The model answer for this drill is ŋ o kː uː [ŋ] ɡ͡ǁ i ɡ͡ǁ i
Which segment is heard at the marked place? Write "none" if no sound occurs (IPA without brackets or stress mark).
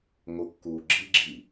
none